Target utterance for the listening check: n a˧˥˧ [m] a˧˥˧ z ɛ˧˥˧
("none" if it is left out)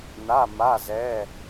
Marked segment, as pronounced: m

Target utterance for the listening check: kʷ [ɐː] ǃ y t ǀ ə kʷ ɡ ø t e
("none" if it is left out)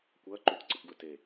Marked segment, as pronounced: ɐː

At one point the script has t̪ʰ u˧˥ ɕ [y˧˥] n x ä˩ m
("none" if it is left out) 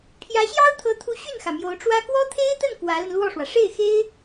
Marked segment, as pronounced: y˥˩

